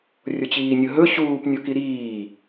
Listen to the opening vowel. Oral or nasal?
oral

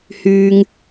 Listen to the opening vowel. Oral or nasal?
oral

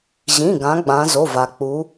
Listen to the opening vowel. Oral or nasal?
nasal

